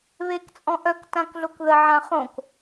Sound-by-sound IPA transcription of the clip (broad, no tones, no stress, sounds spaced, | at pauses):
β e k t͡sʼ ɔ̃ ʔ œ k t ã k ɮ o k ð ə ʕ ã χ õ k